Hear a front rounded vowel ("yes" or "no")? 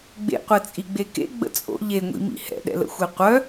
yes